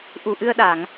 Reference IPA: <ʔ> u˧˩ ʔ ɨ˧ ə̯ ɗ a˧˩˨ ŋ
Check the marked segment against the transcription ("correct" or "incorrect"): correct